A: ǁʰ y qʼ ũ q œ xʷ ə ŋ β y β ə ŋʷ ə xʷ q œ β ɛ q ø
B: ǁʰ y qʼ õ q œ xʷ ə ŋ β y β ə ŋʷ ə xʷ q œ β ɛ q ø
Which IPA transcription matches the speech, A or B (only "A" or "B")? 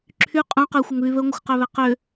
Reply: A